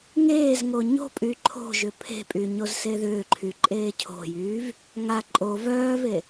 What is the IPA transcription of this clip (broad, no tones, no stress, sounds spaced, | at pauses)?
ŋ eː z ŋ o ɲ o̤ pʼ y ǃʰ o̤ ʒ ʏ pʰ e̤ pʼ y ɲ o z s e ð ʏː ǃʰ y ǃʼ eː cʰ o̤ j yː v | ŋ a ǃʼ o v œː v e